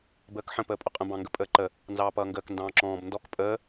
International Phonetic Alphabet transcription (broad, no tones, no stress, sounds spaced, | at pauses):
b əː k ħ ə̃ p əː pʼ ʊ qʼ ə̃ b ɑ̃ ŋ ɡ ə pʼ əː ǃ ə | n z ɑː p ʌː ŋ ɡ əː k n d ɑ̃ː ǁ ɔ̃ː b n d ɔ k pʼ əː